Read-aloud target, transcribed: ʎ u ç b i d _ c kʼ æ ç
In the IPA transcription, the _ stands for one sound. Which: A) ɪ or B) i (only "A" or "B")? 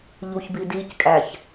B